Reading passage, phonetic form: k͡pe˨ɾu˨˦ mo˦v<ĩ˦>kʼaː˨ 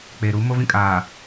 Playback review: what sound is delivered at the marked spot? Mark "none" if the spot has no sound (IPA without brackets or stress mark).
ĩ˦